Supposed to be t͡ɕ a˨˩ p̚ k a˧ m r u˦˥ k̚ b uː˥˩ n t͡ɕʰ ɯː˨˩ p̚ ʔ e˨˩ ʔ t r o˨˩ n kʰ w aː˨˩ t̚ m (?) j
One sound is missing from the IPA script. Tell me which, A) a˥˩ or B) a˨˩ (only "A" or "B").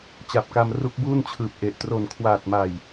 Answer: B